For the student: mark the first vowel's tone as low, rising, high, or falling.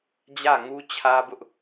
falling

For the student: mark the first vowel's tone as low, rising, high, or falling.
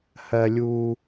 high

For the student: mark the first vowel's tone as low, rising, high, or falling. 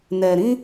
low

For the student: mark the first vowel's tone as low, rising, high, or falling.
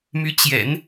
rising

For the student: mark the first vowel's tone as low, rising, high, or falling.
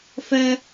high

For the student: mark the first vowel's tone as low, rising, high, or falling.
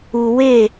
low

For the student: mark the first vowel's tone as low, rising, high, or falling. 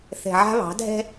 low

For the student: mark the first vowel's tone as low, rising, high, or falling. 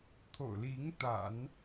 low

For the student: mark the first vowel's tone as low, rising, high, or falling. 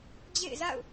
falling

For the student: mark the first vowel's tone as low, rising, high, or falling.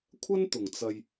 high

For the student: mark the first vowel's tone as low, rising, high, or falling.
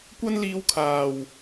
high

